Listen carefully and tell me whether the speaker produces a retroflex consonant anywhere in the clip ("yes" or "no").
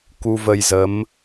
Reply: no